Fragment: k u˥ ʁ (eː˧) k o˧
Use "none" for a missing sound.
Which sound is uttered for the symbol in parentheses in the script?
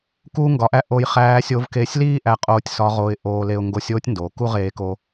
eː˧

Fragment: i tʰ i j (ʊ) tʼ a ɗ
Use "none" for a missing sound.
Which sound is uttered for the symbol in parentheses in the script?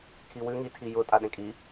ʊ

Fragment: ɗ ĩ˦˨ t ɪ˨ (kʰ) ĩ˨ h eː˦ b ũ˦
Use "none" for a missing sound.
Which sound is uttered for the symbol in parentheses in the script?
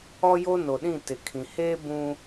kʰ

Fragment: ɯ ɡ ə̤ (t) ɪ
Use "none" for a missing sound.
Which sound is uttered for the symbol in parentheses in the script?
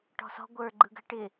ʈ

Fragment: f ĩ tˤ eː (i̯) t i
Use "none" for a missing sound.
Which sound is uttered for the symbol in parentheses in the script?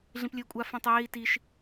i̯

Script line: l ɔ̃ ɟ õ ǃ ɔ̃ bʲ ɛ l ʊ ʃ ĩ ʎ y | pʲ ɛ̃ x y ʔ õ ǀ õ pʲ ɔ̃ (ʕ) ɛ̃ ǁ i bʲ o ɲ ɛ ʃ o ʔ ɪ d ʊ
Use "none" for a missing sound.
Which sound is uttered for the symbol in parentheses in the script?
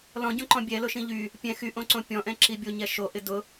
ʔ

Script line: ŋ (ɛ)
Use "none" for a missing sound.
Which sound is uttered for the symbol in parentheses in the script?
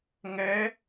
ɛ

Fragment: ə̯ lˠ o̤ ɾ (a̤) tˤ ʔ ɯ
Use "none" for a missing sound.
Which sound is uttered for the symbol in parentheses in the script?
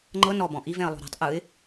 a̤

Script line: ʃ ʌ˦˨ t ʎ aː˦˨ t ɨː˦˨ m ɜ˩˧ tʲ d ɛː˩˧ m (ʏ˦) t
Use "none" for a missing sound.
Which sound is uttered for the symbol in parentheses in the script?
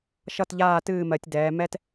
ɛ˦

